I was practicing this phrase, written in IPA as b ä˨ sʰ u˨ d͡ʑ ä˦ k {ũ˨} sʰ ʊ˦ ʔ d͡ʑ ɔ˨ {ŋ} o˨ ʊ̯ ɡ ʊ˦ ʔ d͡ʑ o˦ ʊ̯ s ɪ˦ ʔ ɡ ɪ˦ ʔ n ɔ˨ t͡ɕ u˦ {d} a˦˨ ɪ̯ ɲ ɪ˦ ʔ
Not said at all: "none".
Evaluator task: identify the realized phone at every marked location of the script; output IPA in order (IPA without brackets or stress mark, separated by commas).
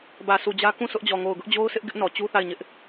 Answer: ũ˦˨, ŋ, θ